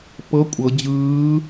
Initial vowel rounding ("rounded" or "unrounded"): unrounded